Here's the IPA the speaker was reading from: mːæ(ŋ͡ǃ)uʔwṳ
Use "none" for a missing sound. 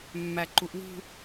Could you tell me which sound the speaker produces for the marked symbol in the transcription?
ǃ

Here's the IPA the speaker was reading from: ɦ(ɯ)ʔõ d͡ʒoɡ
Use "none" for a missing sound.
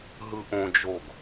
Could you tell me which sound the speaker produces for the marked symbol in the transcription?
ɯ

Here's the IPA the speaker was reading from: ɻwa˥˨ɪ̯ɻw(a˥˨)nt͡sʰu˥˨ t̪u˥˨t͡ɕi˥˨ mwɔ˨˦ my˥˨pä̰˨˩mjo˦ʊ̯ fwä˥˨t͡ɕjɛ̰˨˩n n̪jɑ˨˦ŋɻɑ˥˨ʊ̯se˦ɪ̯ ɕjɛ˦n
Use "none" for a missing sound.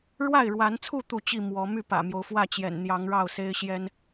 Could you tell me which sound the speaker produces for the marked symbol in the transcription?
a˨˦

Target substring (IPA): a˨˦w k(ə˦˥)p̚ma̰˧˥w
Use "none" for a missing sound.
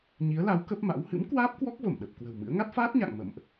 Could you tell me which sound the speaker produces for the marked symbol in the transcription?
ə˦˥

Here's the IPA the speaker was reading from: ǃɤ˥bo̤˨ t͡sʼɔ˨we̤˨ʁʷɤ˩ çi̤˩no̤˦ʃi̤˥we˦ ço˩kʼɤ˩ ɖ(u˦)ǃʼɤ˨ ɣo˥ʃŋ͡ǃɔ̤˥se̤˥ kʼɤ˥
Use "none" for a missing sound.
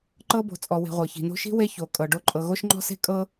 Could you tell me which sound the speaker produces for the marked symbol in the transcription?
o˦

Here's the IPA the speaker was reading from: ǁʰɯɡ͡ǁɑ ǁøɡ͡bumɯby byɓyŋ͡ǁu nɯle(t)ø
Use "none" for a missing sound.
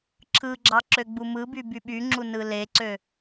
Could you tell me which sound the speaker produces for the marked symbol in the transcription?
ǀ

